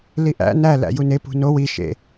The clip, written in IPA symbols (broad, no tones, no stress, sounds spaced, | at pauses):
l i ʔ æ̰ n æ l æ̰ j u n e p ṳ n o w i ʃ ḛ